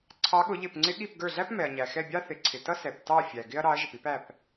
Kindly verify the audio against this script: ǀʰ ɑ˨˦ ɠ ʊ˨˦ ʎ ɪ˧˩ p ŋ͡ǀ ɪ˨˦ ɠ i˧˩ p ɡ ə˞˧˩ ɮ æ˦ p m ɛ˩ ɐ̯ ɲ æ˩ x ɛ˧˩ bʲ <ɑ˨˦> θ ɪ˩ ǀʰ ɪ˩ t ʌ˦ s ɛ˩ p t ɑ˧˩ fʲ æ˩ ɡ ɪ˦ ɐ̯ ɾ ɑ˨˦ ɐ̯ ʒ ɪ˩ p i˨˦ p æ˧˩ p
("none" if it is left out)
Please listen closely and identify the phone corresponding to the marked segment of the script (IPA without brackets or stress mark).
ɑ˦